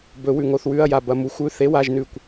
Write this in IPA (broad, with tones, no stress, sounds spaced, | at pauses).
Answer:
b ɵ˨˩˦ w ʉ˧˩ ŋ o˧˥˧ θ w ʉ˧˥˧ ɐ̯ j a˧˩ b ɐ˧˥˧ m u˨˩˦ xʷ ʉ˧˥˧ θ e˧˥˧ w a˧˥˧ ʒ n ʉ˧˩ kʷ